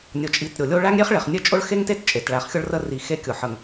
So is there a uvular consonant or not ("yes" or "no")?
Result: yes